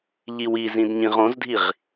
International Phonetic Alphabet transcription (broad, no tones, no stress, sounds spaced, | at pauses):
ʎ i w i z ĩ d ɲ ĩ ʁ õ z dʱ i ʁ